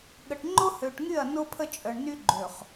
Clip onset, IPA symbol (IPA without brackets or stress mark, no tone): ɠ